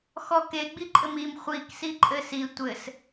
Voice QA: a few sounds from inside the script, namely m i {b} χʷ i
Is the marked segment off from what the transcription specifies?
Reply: yes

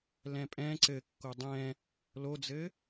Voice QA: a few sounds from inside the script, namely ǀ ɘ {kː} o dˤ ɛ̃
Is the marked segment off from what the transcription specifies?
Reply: no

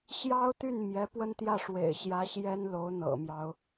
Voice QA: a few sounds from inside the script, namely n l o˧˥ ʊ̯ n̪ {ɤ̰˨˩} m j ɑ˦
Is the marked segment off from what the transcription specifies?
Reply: no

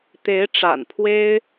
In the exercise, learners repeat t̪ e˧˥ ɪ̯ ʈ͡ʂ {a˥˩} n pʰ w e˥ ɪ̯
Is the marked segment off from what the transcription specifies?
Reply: yes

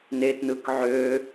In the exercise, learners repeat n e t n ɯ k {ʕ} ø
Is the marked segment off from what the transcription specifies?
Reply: no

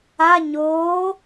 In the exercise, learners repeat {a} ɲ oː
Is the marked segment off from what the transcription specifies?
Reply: no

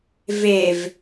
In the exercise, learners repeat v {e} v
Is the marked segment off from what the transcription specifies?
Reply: no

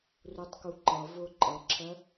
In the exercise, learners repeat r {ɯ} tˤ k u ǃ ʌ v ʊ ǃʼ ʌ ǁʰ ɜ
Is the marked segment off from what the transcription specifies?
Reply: yes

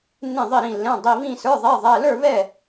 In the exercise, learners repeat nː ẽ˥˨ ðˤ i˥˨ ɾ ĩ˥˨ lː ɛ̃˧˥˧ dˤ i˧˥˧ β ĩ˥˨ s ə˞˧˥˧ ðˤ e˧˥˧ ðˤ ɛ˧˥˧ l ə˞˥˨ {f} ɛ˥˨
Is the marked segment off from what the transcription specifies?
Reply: yes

